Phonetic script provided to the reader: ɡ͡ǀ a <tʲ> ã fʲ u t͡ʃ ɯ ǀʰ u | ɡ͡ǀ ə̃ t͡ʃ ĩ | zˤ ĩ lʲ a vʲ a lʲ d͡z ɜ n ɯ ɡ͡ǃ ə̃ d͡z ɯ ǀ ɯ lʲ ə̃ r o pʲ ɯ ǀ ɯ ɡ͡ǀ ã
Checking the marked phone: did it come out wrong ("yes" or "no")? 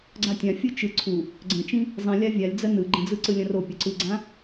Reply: no